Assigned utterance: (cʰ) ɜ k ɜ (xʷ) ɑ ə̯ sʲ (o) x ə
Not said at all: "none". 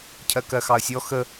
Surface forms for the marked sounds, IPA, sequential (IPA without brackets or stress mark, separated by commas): cʰ, x, ɔ